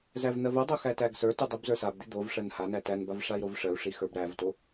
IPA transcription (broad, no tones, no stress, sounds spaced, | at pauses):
z æ v n̪ ɜ v o dˤ o x æ t æ ɡ s ə˞ t u dˤ i b z ə˞ s a b d̪ i d̪ o v ʂ ɜ n h a n æ t æ n b a v ʂ a i̯ ɾ o v ʂ ɜ u̯ ʂ i x ə˞ b ɾ æ v t o